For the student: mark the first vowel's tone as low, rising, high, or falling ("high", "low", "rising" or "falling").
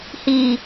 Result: low